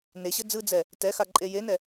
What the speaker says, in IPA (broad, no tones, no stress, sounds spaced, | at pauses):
n e ɕ ɘ d͡z ɯ d͡z ɛ | t ɛ x a ǃʼ e j e n ɛ